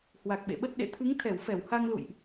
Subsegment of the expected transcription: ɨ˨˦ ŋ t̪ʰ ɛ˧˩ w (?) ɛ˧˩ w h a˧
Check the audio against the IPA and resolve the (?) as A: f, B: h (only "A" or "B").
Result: A